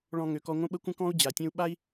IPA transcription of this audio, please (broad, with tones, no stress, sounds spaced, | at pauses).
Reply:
ɭ ɔ̃˧ ŋ ø˨ k ɔ˧ ŋʷ ə̃˦ ɓ ə˦ kʷ ə̃˦ k ɔ̃˦ u̯ d͡ʑ a˨ tʲ ə̃˦ u̯ ɓ a˦ i̯